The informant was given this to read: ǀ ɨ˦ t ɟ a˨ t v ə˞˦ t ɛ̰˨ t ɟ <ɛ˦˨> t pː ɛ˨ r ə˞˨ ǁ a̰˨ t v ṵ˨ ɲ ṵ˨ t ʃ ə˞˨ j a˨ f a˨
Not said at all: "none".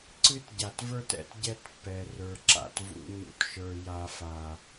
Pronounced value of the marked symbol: ɛ˦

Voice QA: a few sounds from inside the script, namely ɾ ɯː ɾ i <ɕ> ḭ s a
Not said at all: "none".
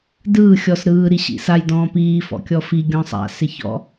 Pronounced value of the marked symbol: ɕ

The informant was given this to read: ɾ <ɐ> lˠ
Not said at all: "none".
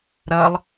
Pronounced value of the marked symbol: ɐ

